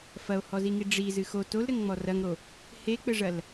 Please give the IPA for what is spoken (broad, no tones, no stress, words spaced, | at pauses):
fɐo̯hɔziŋi ɖ͡ʐizɨ xo tolɾɘŋŋ͡mɔ rɐŋɾo | hek͡pɘʐɐl